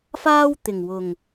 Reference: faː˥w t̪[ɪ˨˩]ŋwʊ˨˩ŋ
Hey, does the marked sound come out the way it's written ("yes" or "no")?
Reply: yes